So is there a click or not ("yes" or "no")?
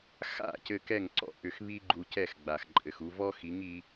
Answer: yes